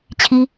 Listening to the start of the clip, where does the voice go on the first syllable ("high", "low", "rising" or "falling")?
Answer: high